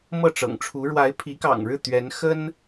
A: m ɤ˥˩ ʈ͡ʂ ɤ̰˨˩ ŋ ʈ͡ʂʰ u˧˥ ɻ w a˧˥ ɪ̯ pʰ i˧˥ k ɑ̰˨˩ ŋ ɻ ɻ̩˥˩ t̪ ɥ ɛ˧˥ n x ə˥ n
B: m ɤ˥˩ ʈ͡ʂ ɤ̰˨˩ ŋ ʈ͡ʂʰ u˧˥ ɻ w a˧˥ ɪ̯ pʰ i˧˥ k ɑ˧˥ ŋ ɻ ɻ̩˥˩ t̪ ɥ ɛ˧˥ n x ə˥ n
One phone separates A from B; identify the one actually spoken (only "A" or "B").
A